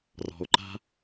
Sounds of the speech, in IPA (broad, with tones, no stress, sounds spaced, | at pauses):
r ɔ̤˨ o̯ ǃ a̤˦